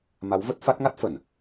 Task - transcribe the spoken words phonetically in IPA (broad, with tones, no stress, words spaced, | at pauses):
ma˨˦wvə˦˥t̚fa˦˥t̚ ŋa˦˥t̚fə˧˩˨n